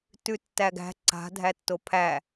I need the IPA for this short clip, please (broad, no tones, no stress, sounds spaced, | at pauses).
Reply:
t ʉ tː æ ɡ æ̤ ǀ a̤ dʱ æ tː o pʰ æ